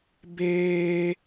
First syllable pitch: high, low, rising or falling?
high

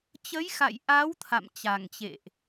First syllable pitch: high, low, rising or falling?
rising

